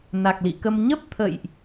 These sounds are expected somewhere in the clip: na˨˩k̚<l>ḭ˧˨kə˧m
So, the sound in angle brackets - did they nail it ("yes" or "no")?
yes